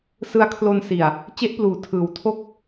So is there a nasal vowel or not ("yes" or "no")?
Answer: no